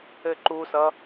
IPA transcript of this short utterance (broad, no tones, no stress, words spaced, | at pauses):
ɘǃusʌ